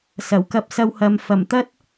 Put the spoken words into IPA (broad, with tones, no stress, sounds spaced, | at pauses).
s ɐ˨˩ w k ɐ˧ p̚ s ɐ˧ w h ɐ˨ m f ɐ˨˩ m t̪ ɐ˥ t̚